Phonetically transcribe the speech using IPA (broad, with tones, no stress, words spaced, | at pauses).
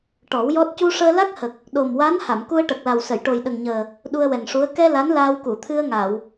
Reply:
ʈɔ˨˩˦wjɔ˦˥t̚ cu˧ʂəː˧la˦˥k̚hə˨˩k̚ | ɗo˨˩mwa˧˥n ha˨˩˨mku˧ə̯ʈə˨˩k̚la˨˩w sə˨˩˨jʈo˨˩jɗə˨˩ŋɲəː˨˩ | ɗu˧ə̯wɛ˨˩ŋʂu˧˥ə̯ kɛ˧ la˧˥nlaː˧wku˨˩˨t̪ʰɨ˧ə̯ ŋa˨˩˨w